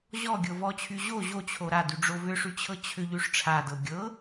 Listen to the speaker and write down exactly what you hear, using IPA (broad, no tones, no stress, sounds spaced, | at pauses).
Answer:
ʑ ɔ ɡʲ ɤ v ɔ t͡ɕʰ y ʑ o ʑ o t͡ɕʰ o ɾ a d y ɖ͡ʐ o v ʏ ʂ y t͡ɕʰ ɤ t͡ɕʰ ʏ ʎ y ʂ ʈ͡ʂʰ a d ɤ ɡʲ ɤ